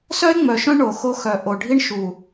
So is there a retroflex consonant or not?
yes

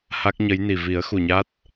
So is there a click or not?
no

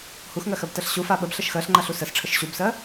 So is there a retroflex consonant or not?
yes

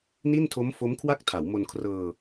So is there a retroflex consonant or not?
no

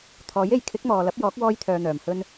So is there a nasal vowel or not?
no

